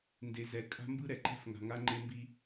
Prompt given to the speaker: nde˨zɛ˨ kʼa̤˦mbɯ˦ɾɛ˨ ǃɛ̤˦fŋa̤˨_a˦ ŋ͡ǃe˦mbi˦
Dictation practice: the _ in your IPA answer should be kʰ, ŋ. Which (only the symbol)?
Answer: ŋ